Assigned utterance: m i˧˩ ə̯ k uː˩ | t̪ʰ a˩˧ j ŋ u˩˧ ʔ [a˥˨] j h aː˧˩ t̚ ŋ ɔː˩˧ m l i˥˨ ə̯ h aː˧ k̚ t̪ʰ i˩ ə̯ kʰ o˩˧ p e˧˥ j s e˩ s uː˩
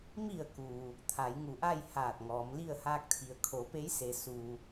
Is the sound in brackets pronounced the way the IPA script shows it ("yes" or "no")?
yes